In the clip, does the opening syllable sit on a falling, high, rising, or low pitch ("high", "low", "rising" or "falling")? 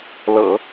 low